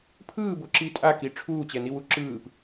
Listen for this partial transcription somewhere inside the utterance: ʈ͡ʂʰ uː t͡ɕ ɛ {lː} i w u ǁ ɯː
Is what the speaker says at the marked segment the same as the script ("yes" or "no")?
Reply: no